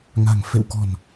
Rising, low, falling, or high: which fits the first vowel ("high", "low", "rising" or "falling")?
low